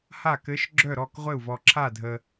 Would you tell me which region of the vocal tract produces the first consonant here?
throat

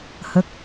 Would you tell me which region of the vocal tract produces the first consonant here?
throat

